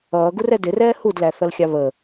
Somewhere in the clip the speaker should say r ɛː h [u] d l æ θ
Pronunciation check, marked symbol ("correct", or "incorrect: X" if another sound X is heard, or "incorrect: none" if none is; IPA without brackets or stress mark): correct